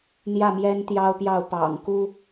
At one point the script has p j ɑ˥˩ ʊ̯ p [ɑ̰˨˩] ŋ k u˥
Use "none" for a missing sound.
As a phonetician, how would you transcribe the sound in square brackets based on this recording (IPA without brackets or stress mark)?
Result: ɑ̰˨˩